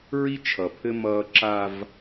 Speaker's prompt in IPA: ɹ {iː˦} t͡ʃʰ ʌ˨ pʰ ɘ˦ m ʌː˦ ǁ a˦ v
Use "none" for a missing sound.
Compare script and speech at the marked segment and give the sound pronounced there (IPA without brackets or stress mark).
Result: i˦